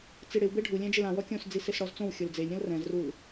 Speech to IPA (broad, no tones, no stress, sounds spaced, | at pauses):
t͡s i ɽ ɪ w b e ɖʱ u lʲ ɛ̃ d͡ʒ ɪ l ã w ɔ kʲ õ s d͡z i s e s ɽ ɔ z t͡s õ w xʲ o l d͡z e lʲ ɾʲ ɔ̃ l r ɛ̃ z r u l